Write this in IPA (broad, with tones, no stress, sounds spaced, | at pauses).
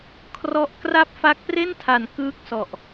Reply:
kʰ r ɔ˦˥ ʔ k r a˥˩ p̚ f a˦˥ k̚ p r e˥˩ n tʰ a˨˩ n k ɯː˥˩ k̚ s ɔ˨˩ ʔ